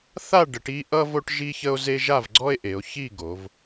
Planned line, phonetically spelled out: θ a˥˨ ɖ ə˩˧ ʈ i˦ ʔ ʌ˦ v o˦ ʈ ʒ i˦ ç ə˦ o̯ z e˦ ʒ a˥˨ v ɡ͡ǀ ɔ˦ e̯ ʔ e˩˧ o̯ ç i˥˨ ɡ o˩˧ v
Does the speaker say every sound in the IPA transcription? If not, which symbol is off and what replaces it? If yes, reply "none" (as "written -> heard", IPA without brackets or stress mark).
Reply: none